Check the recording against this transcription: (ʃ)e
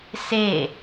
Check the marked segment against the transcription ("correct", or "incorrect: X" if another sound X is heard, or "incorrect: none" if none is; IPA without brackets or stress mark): incorrect: s